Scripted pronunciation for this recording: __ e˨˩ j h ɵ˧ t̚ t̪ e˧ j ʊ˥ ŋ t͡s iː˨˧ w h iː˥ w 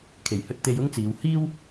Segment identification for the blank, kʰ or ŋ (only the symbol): kʰ